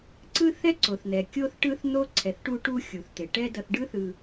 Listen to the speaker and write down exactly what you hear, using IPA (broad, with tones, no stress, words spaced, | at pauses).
ǀɯ˦θɛ˦ ǀo˨θn̪ɛ˨ kʲo˦θʈɯ˦θn̪o˦ ǀʰɛ˨θ ʈu˧ʈu˧ xʲu˨θt̪e˨ʈɛ˦dʌ˧θ ɖɯ˦θɯ˧